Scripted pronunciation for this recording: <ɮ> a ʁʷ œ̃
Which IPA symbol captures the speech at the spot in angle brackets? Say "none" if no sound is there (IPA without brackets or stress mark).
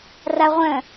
r